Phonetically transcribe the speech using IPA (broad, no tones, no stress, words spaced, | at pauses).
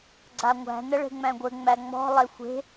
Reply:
ɡ͡ǀaŋʷæ̤ nəɭe̤ŋ͡mæ̃ɡʷɘ ŋ͡mæŋ͡mɔ̤ lˠexʷe̤